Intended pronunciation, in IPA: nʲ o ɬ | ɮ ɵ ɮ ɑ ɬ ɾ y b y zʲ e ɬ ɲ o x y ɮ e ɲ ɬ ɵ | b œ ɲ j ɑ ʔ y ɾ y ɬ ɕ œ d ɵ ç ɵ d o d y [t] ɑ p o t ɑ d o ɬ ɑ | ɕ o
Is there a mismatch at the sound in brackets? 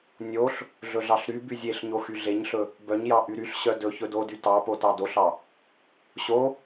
no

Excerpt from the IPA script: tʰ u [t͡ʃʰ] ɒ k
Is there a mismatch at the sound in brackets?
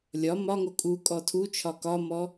no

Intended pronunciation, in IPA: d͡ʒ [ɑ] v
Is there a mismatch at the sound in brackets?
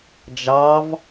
no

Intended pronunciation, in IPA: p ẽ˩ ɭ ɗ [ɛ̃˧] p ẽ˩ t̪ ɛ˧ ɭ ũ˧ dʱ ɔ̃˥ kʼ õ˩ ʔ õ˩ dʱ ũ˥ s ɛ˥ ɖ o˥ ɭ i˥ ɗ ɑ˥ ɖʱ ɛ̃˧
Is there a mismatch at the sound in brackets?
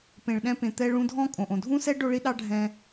no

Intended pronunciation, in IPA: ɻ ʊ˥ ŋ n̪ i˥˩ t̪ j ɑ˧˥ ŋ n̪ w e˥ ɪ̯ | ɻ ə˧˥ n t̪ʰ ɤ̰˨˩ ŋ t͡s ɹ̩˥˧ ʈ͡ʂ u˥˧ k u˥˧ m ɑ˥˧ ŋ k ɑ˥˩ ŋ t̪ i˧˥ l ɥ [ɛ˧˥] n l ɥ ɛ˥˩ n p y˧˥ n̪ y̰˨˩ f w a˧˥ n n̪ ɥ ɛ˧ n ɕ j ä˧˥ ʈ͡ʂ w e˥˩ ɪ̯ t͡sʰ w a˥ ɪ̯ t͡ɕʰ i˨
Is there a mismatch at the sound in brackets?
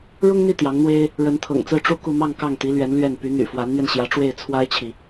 no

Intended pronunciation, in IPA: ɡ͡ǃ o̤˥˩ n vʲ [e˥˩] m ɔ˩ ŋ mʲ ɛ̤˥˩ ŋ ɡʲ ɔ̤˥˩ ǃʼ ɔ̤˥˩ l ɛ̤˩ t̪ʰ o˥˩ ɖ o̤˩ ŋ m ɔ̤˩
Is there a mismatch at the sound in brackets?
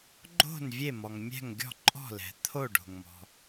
no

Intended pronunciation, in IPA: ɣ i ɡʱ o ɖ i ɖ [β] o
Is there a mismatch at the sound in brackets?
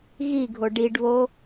no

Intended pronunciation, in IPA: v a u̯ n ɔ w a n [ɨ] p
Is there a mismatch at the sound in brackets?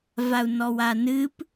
no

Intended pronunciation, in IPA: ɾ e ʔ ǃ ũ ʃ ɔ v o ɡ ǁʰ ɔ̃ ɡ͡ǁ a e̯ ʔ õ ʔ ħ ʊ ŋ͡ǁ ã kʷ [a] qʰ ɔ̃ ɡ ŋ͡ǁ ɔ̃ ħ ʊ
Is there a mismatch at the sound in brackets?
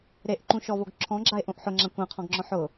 yes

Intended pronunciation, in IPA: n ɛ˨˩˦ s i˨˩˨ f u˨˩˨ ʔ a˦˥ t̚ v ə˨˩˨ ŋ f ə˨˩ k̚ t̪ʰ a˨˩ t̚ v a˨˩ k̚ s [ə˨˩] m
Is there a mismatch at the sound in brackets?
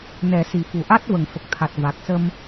yes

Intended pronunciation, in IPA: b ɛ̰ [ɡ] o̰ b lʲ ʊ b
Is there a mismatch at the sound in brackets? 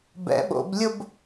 yes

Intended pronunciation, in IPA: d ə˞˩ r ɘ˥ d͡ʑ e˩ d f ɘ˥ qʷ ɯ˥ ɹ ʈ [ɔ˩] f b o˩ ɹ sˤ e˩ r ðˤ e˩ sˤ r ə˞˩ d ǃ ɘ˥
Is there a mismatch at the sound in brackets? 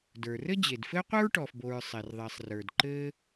no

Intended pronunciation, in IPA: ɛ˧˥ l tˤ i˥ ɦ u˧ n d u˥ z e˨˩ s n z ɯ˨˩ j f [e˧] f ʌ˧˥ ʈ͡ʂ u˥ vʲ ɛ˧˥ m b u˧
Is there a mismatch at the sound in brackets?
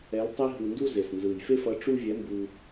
yes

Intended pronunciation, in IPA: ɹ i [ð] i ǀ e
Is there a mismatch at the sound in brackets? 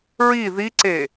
no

